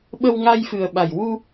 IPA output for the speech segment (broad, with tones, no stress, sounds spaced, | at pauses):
ɓ ə˧ w ŋ a˧ j f ɨ˨˩ ə̯ ɓ a˨˩ j w u˧